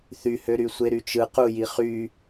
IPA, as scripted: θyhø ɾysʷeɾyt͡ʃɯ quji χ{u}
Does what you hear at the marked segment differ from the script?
yes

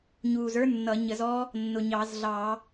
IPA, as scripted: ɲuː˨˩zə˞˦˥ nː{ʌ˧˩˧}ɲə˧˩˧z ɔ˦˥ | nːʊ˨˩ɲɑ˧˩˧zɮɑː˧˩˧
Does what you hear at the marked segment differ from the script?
no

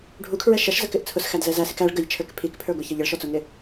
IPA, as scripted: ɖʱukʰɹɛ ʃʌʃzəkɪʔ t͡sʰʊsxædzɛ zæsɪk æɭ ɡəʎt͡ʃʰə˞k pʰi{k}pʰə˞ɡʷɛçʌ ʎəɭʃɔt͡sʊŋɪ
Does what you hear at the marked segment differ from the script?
no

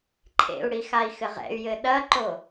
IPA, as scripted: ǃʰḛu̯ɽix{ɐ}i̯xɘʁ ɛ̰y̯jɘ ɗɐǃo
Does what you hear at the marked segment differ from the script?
yes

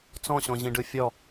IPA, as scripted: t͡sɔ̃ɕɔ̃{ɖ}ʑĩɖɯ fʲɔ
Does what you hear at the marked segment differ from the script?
yes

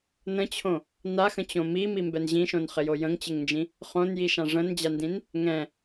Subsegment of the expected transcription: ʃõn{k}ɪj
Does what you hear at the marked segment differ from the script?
yes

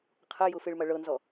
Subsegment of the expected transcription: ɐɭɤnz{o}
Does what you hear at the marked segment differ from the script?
yes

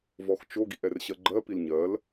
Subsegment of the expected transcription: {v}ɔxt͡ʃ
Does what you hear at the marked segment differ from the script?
no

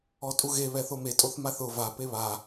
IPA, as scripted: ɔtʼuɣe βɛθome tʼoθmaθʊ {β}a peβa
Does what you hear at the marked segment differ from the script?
yes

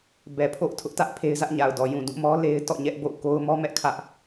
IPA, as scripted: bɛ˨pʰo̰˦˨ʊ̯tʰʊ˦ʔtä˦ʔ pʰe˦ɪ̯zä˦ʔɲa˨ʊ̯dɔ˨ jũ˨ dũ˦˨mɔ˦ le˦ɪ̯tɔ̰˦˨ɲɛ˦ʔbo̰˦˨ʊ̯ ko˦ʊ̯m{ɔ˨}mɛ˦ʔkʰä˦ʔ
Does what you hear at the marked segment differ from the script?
yes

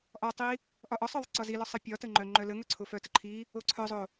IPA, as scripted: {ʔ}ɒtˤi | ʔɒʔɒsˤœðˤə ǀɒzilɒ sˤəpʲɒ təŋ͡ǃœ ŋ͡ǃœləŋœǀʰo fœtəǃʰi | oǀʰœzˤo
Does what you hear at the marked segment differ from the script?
no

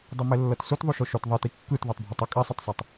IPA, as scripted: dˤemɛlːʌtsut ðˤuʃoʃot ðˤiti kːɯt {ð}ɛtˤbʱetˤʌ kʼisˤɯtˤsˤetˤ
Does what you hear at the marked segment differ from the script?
no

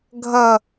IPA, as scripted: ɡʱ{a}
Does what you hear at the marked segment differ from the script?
yes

